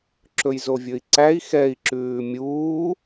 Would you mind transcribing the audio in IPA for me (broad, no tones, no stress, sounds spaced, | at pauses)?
ǁ ɵ j z o vʲ ɵ i̯ ǀ æ i̯ x ɛ i̯ ǁ ʉː mʲ uː